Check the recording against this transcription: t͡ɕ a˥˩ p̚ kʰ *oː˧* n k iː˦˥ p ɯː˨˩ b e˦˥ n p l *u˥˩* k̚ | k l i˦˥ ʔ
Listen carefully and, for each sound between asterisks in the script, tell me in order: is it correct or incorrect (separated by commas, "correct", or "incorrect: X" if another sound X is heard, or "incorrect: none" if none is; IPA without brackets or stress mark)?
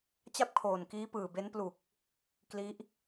incorrect: oː˨˩, incorrect: u˨˩